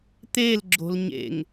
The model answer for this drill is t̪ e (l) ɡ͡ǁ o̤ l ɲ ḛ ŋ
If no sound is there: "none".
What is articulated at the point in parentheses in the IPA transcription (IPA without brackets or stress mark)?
l